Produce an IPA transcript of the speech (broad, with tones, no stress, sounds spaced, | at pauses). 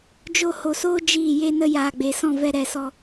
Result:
d͡ʒ o˧ h o˨ s oː˦ d͡ʒ iː˦˨ j e˦ n ə˦ j aː˨ ɡ͡b e˨ s ɔ̃˦˨ v ɛ˧ ɾ ɛ˨ s ɔ˧